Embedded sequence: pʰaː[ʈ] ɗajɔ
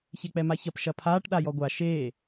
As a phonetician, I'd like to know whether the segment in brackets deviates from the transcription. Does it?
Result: no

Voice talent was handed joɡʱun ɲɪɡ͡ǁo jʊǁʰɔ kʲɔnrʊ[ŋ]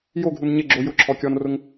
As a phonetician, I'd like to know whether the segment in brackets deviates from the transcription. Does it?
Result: no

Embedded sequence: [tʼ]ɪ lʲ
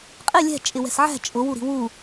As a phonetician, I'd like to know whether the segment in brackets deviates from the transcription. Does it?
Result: yes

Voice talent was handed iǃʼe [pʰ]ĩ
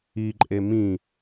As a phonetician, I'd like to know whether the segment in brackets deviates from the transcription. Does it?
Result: yes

